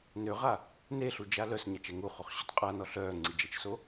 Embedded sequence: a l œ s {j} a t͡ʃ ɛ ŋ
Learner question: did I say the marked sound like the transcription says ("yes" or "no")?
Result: no